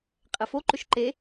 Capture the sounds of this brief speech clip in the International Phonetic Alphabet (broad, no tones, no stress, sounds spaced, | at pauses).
qʼ ɛ f o ǃ ʏ ʃ ǃ e